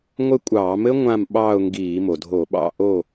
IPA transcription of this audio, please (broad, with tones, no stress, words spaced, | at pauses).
ŋʷɘ˦˨ kʷʼɑː˧˩˧mɘ˦˥ ŋʷã˦˨m ɓɑː˦˨ʊ̯ŋɡiː˧˩˧ mo˩dʱo˧˩˧ɓɑ̰˦˨ ʔo˦˨